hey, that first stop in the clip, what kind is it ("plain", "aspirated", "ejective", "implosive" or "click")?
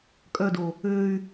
ejective